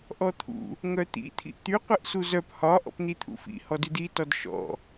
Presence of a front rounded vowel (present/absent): present